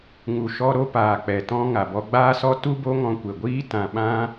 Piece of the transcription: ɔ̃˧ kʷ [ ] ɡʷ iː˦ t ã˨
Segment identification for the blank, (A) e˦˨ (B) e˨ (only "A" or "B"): B